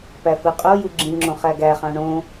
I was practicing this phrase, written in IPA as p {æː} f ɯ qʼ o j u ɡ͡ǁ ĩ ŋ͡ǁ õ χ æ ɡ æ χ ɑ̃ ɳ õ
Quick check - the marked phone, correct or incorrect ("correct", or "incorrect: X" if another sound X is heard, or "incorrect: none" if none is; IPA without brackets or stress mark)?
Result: incorrect: æ